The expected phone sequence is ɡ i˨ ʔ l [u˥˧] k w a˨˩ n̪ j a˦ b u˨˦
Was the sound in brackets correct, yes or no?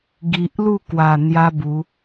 yes